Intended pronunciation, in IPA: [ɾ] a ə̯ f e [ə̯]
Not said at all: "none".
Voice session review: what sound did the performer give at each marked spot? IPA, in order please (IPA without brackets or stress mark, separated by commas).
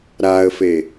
ɾ, none